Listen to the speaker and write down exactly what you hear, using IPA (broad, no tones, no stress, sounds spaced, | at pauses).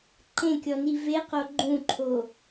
ǃ ẽ kʲ ɔ n i v e q o ɡ͡ǃ ũ ǃʰ o